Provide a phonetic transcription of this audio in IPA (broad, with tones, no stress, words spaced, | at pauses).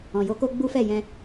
ɔ̃˨jo˧ko˦ ɡ͡bu˦fɛ˦˨jɛ̃˧